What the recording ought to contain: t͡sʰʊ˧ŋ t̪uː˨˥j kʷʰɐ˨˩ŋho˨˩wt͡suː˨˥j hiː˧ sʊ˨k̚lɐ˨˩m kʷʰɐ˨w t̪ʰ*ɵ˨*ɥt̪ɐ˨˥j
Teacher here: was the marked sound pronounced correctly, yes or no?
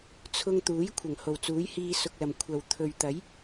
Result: yes